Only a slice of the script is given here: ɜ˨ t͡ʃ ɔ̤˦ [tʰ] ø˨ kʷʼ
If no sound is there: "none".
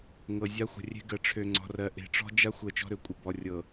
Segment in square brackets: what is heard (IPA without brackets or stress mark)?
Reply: ɾ